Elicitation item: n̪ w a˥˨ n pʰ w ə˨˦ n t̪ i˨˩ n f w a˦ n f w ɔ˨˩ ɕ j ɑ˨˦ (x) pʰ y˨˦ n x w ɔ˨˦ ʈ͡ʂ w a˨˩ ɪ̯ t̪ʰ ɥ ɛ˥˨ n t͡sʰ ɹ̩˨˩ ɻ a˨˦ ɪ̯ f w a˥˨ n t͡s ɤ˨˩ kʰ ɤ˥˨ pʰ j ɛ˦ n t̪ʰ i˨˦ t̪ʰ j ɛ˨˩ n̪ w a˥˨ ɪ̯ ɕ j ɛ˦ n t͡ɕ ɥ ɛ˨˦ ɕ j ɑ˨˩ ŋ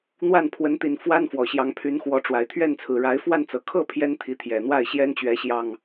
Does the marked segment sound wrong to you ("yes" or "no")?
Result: yes